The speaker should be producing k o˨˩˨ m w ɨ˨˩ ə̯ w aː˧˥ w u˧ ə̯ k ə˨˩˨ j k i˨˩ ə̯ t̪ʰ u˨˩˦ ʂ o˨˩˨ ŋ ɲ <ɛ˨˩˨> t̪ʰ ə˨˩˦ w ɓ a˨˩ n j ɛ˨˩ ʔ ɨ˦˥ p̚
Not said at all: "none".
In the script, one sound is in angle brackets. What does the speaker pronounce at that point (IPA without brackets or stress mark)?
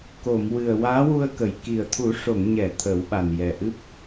ɛ˨˩˨